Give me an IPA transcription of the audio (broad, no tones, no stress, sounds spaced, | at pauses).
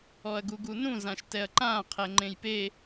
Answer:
ɔ ɐ̯ ɡ u ɡ u n ũ z ã ʃ t ɛ ɐ̯ ǃ ãː qʰ ɛ ŋ͡ǃ ẽ j p e